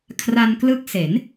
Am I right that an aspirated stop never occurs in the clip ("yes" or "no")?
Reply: no